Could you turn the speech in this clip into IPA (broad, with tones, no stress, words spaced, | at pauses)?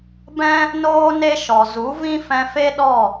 bɛ̃˦ | noː˦ne˦ʃɔ˨ zu˨˦vĩ˦fɛ̃˧fe˦ ɗɔ˦˨